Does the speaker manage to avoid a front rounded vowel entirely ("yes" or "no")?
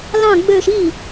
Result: no